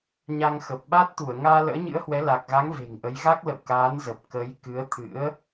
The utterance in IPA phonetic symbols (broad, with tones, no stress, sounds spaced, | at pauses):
ɲ a˧ ŋ x ə˨˩ p̚ ɓ a˦˥ t̚ t̪ u˧˩ ə̯ ŋ aː˧ l ə̰ː˧˥ ɲ ɨ̰˧˥ ə̯ h w ɛ˨˦ l a˨˩ k̚ ɣ a˨˦ ŋ v e̤˨˩ ŋ ʔ ə˨˦ j ɣ a˦˥ k̚ l ə̰˧˨ w k aː˨˦ n z ə˨˩ p̚ k ə˨˦ j k ɨ˨˦ ə̯ t̪ʰ ɨ̰˧˥ ə̯